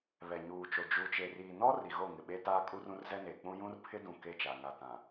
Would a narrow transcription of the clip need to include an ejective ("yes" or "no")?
yes